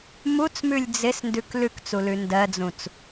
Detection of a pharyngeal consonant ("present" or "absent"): absent